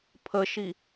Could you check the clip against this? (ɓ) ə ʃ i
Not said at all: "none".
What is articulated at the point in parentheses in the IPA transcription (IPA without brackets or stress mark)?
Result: pʰ